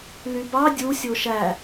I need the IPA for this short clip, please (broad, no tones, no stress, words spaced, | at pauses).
lybɑ dʲu sʲoʃæ